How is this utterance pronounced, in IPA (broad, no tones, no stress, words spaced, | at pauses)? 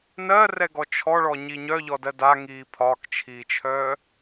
nɜrɛɡɔ t͡ʃʰɔɭɔɲi ɲœʎɔdɜ daŋiː pʰɒkt͡ʃʰiːt͡ʃʰœː